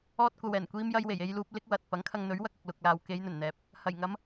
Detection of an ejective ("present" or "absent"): absent